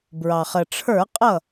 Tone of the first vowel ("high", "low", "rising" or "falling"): low